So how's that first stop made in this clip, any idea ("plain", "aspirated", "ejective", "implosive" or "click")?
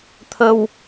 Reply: aspirated